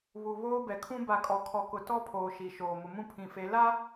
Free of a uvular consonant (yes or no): yes